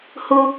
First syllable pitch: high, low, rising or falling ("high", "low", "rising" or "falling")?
high